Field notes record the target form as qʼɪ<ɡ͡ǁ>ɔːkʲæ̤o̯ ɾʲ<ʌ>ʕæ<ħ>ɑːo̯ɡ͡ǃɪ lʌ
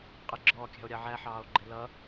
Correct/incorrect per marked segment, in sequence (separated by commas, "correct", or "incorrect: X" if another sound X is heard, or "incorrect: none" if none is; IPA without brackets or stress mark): correct, incorrect: ɑ, correct